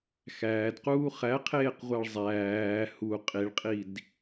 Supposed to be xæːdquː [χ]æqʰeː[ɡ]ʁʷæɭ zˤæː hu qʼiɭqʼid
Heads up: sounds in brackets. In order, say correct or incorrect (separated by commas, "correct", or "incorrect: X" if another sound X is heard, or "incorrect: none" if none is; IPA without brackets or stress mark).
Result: correct, incorrect: q